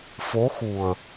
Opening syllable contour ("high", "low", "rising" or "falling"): rising